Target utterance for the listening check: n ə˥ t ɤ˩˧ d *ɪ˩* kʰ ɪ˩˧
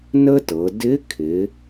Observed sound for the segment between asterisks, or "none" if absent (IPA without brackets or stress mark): ɪ˧˥